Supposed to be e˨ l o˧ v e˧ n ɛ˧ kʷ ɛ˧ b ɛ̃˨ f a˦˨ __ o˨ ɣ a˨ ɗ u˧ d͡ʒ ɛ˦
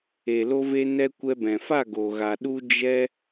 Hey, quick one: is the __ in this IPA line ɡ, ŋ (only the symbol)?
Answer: ɡ